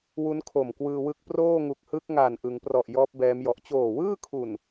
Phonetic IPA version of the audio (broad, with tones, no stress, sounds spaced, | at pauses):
w u˦˥ n kʰ o˨˩ m k w ɯː˧ w ɯ˦˥ k̚ p r oː˥˩ ŋ u˨˩ k̚ h ɯ˦˥ k̚ ŋ a˨˩ n ʔ ɯ˩˦ ŋ p r ɔ˨˩ ʔ j ɔː˦˥ p̚ b ɛː˦˥ m j ɔ˨˩ ʔ t͡ɕ oː˨˩ w ɯː˥˩ kʰ u˨˩ n